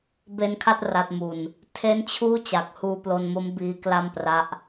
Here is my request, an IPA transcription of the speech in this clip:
b e˧ n kʰ a˥˩ t̚ r a˨˩ t̚ m u˨˩ n | tʰ e˦˥ n t͡ɕʰ uː˥˩ t͡ɕ a˨˩ k̚ h uː˧ p l o˧ n m o˦˥ m b iː˦˥ k l a˥˩ m p r a˦˥ ʔ

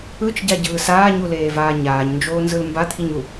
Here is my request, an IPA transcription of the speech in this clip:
ɯ t͡ʃ ɟ a ɟ ɯː s aː ɲ u l eː v aː ɲ aː ɲ n d͡ʒ oː n z ɯ l m b a t̪ʰ i ɲ u

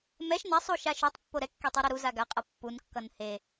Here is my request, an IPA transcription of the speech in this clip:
m ɛ ʃ n ɛ sˤ u ʃ a ʃ u tˤ pː o ɾ ɛ kː e tˤ u ɾ a ɾ u z a ɡ a qʼ ʌ pː u n kː ʌ n h e

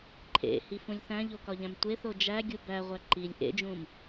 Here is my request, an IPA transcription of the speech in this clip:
ǃʰ ḛ h i f ũ lʲ θ æ̃ ʎ o k ɒ ʎ æ̃ m tʷ e θ o d͡ʒ æ ɡʲ u b æ ʁʷ æ ǃ i lʲ ʔ ḛ d͡ʒ ũ m

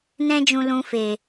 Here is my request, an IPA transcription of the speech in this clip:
n ɛ̃˦ d͡ʒ ũ˧ l ũ˧ f e˨

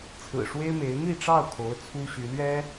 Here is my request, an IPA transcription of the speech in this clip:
t͡sʰ ɹ̩˨˩ ʂ w e˥ ɪ̯ m e˧˥ ɪ̯ n̪ i˥˧ ʈ͡ʂ ɑ˥˩ ʊ̯ kʰ o˧˥ ʊ̯ t͡sʰ u˥ ɕ y˧˥ l ɥ ɛ˥

